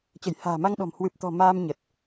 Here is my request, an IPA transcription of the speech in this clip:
t͡ɕə˧˩jha̤ː˨˩ma˧ŋɗɔ̤˨˩m hwɨ˨˩p̚t̪ɔ̤˨˩ maː˧mɲə˨˩t̚

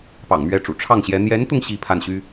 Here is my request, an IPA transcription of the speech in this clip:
pɑ̰˨˩ŋmɥɛ˧˥ʈ͡ʂṵ˨˩ ʈ͡ʂʰɑ˥˩ŋɕjɛ˧˥ n̪jɛ˧˥nt̪ʊ˧ŋ ɕi˥˧pʰa˥˩nɕy˥

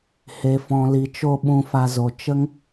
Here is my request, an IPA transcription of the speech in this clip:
he˨fɔ̃˨li˨t͡ʃo˧ ɓũ˧fa˧zo˨ t͡ʃə˦ŋ

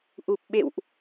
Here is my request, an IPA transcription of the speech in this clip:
ʔu˨˩p̚ɓḛ˧˨wʔ

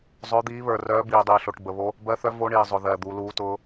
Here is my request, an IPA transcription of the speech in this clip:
zˤœ˦˥d̪iː˦˥βə˞˧rœː˦˥ biː˧dˤiː˧ɬo˧ʈbə˧ βo˦˥ | bɜ˦˥θœ˦˥ vo˦˥ɳiː˧zˤʊ˧ðɜː˧ d̪u˦˥ luː˦˥tʊː˦˥

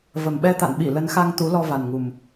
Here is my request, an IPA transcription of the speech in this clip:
və˨˩mɓɛ˧t̪a̰˧˨nɓi˧˩ lə˨˦nxa˧ŋ t̪u˨˦lɔ˧va˨˩nŋu˨˩m

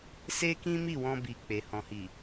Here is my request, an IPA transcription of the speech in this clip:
se˦ kĩ˦mi˦˨wɔ̃˧bi˨ k͡pe˨hɔ̃˨hi˨

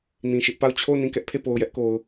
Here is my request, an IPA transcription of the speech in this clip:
nĩ˨ʃɪ˦ʔpa˦˨ʊ̯ t͡ɕʰo˦˨ʊ̯nĩ˦˨ kɛ˦ʔpʰe˦˨po˨ʊ̯jɛ˦ʔ ko˨ʊ̯

